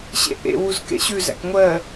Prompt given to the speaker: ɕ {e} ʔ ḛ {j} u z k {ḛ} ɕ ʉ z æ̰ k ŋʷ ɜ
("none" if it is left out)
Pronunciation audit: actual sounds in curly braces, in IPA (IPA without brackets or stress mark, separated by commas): ḛ, w, ḛ